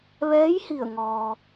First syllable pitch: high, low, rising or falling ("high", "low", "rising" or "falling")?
rising